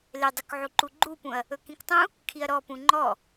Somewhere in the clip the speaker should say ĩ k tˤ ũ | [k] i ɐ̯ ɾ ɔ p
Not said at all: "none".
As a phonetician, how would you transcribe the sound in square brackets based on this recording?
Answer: kʰ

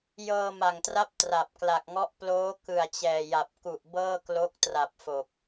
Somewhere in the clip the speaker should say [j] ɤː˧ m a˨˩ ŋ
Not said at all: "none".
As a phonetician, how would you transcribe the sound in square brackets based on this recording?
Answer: j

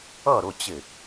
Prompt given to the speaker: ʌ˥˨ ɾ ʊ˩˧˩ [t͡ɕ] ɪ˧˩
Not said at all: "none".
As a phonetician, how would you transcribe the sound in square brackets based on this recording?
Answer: t͡ɕ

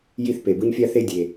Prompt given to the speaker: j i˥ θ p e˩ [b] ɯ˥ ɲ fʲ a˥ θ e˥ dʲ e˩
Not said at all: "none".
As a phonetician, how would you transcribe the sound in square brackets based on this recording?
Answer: b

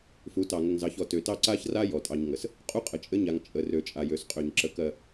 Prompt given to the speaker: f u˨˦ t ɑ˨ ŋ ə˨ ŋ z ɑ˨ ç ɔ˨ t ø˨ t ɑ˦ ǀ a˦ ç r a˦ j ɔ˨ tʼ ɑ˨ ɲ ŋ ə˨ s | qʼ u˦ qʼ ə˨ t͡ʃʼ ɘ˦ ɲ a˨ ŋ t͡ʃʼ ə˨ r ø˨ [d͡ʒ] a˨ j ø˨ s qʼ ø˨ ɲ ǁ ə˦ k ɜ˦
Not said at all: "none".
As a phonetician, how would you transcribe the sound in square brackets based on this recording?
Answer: t͡ʃʼ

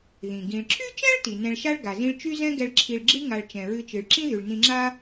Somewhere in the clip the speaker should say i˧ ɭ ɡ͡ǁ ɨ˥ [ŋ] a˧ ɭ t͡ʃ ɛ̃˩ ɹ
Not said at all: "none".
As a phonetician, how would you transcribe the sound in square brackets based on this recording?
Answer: ŋ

